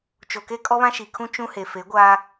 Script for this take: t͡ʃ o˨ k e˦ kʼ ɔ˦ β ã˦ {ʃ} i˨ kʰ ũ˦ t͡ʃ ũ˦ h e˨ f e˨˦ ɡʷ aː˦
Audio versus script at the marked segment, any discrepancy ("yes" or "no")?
no